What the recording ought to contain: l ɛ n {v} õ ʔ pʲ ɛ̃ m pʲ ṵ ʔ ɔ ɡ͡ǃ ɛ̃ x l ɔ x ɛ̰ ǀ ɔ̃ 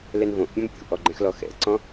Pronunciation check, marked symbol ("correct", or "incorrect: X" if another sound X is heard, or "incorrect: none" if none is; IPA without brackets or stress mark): correct